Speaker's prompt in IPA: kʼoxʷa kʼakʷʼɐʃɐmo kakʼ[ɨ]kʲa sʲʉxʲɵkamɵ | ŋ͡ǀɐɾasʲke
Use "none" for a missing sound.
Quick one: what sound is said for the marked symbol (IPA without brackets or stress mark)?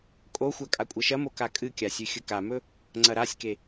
ɨ